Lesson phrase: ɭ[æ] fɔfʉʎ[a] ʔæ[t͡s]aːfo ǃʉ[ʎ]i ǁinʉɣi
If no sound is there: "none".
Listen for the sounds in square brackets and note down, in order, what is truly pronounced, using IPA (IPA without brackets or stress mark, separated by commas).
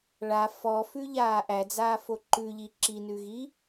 a, aː, d͡z, ʎ